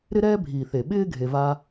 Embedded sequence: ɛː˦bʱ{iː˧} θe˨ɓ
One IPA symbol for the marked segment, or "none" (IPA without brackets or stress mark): iː˨